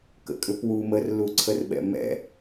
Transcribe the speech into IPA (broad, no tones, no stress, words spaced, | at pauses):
kə̰kʼʏpwu mərluǀʰərɓɛ̰ mɛ̰